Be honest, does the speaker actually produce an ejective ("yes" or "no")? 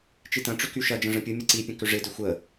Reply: no